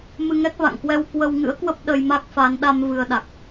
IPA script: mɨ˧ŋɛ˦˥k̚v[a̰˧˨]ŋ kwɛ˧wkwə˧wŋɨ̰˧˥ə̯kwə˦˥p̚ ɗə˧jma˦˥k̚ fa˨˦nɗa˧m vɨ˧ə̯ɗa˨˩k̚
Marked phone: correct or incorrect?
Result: correct